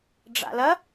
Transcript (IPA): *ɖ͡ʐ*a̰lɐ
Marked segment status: correct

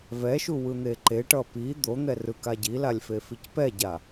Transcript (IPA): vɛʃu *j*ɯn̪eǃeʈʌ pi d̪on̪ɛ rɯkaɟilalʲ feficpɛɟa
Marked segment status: incorrect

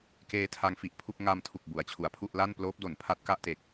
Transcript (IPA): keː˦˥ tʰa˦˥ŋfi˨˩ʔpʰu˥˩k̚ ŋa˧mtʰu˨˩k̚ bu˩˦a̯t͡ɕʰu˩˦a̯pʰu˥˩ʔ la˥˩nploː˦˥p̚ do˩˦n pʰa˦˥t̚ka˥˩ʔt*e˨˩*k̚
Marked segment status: correct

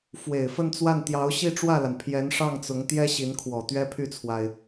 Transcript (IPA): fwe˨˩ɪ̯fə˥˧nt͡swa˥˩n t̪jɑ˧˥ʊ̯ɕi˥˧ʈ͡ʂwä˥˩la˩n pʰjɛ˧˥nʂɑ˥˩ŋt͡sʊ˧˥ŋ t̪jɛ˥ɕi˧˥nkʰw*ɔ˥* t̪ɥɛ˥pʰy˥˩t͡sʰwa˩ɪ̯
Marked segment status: incorrect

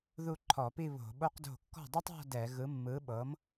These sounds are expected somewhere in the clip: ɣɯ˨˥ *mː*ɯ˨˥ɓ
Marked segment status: correct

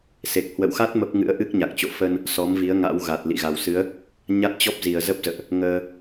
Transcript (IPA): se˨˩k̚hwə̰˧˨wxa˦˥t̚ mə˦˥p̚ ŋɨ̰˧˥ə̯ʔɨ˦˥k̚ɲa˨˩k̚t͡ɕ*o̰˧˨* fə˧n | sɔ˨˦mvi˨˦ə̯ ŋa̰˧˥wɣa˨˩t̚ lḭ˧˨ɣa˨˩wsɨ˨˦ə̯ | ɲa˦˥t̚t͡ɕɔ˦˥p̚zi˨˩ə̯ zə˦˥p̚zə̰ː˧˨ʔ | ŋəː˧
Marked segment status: correct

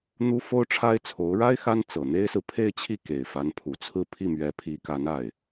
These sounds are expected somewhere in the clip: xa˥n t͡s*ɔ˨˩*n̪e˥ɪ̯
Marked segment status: incorrect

